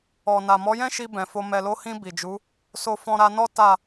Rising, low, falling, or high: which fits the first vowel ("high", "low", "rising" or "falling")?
low